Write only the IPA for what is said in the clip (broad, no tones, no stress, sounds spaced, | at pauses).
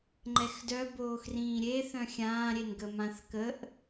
ŋ͡ǃ ɛ x d œ b oː x r ĩː ɾʲ e θ œ̃ xʲ ãː ɾʲ e n ɡ ə m ã θ k ə ʔ